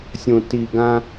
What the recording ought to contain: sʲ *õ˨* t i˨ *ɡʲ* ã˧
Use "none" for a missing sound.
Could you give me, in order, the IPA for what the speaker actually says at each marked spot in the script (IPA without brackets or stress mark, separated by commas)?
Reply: õ˨, ɡ